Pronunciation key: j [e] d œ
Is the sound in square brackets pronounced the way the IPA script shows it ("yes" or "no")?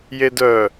yes